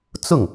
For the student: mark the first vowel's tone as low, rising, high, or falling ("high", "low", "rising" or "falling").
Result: falling